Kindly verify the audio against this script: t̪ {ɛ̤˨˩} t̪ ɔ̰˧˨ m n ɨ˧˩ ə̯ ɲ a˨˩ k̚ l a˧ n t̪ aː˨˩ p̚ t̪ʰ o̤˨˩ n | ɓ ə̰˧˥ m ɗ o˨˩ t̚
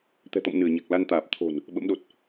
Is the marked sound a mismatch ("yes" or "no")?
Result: no